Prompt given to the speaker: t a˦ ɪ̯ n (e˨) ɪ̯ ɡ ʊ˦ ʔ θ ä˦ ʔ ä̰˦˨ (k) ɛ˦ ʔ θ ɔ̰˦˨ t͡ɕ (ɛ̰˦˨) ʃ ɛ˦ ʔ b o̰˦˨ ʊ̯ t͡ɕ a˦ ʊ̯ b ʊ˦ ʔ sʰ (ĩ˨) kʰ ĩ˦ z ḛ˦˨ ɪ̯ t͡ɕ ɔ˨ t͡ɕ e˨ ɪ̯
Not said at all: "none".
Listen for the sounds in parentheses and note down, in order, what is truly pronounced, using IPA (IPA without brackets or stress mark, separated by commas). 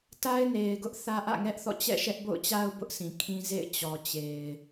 e˨, ŋ, ɛ̰˦˨, ĩ˨